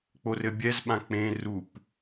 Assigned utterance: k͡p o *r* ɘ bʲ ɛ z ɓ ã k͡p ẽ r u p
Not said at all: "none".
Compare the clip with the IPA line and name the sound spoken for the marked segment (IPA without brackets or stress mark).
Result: r